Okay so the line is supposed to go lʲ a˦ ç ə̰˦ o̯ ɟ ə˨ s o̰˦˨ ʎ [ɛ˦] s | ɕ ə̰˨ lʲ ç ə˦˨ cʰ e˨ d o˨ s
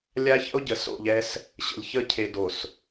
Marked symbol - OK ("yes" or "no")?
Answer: yes